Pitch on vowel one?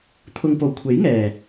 low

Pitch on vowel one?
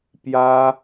high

